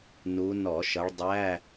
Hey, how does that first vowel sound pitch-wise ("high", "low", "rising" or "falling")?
rising